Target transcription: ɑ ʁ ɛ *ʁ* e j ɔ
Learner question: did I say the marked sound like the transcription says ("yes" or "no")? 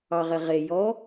yes